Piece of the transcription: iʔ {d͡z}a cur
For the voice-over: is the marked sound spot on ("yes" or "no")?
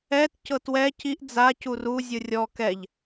yes